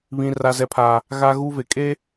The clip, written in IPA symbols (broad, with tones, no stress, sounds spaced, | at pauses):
β ĩ˦ r a˦ z ɛ˦ pʰ aː˦ | ɣ a˦ ɣ u˦ v e˨ kʼ e˦